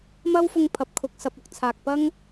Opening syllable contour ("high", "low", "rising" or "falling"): high